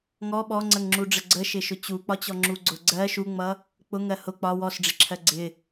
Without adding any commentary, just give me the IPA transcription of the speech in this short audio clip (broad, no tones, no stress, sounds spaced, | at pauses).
ŋ ɔ ɓ ɔ ŋ͡ǀ ə ŋ ŋ͡ǁ u ɖ͡ʐ ə ɡ͡ǀ ə ʃ ɪ ʃ ʊ t͡ɕ u k͡p ɒ t͡ɕ ɔ ŋ͡ǁ u ɡ͡ǀ ʊ ɡ͡ǀ ɜ ʃ u ŋ͡m ʌ | k͡p ʊ ŋ ɜ h ʊ k͡p ɒ w ɔ s ɖ͡ʐ ɪ ǁʰ ɜ ɡ͡ǀ ɪ